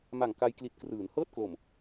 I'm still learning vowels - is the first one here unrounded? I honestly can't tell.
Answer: yes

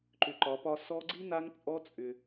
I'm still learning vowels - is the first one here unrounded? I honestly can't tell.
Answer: no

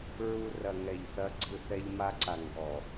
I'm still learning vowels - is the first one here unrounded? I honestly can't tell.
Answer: no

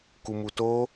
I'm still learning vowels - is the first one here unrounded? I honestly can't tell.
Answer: no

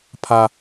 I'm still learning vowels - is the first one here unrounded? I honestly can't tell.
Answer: yes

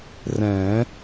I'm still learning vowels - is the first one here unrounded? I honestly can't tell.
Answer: yes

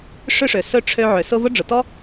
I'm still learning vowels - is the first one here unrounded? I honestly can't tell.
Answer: no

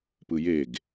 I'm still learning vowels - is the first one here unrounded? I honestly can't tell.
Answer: yes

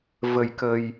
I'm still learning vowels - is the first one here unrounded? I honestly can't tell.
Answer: yes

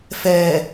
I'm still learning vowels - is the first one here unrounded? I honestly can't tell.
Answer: yes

